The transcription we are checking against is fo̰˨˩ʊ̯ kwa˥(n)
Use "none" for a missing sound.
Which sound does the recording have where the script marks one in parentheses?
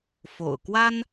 n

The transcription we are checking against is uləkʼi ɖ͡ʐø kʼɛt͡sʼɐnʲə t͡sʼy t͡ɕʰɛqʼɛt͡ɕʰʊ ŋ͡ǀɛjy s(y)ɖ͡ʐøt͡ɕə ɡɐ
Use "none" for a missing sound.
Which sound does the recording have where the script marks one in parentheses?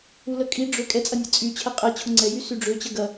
y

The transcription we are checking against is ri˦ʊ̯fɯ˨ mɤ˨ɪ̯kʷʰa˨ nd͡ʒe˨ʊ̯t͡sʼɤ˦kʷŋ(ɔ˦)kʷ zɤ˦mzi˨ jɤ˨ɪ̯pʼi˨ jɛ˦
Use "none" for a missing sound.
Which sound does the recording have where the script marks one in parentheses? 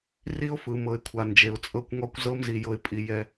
ɔ˦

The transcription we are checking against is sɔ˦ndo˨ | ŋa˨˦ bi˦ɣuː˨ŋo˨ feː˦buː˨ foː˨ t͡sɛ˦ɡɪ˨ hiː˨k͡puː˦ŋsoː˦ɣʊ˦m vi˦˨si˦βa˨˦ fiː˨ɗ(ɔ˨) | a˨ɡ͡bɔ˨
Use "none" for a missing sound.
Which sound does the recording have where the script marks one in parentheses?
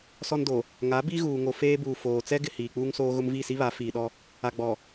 ɔ˦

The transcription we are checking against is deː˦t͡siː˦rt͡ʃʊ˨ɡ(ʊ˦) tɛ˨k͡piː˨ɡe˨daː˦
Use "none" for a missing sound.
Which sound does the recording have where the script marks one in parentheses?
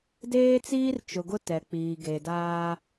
ʊ˦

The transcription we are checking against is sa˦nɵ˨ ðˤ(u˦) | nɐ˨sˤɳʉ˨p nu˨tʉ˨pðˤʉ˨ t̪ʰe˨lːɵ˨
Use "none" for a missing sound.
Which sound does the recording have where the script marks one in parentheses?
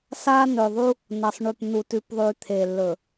u˦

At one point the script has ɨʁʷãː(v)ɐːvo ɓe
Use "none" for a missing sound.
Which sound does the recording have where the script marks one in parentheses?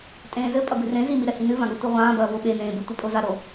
b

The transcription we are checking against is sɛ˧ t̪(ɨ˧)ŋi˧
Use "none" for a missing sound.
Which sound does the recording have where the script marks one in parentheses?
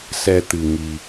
ɨ˧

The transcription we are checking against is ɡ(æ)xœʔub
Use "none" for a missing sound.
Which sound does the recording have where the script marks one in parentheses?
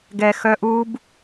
ɛ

